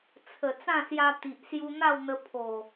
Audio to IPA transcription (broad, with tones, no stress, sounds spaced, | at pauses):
t͡sʰ ə˨˩ t͡s ã˥˧ s j a˧ t̪ i˨ ʔ s j u˧ n̪ a˥˧ w n̪ ə˧ pʰ o˨˩